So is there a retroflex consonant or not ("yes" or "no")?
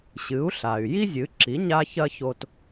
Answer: no